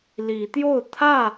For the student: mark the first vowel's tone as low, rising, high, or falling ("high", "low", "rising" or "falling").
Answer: rising